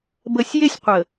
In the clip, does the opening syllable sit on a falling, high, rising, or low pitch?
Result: low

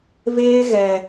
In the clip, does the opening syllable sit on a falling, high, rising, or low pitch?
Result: high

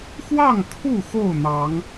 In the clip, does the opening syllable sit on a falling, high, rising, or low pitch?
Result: falling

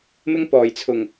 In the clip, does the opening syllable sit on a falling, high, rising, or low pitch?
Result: high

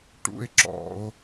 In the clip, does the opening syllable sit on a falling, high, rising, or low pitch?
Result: high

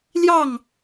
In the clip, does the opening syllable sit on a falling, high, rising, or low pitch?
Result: falling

